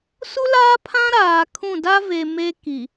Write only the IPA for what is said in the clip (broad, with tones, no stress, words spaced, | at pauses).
su˦laː˦pʰã˦ ɾaː˨kʰũ˦˨ da˦ve˨ me˦ki˨